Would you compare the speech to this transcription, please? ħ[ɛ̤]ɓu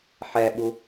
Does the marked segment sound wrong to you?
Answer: yes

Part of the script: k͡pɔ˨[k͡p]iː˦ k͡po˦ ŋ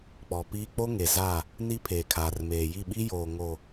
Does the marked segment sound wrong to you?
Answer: yes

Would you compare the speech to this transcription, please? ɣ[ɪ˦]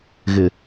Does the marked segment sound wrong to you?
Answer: yes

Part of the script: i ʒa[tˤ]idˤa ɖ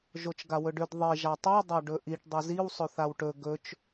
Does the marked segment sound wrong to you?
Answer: no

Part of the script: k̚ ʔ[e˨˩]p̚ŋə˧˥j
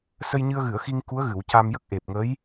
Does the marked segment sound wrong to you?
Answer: no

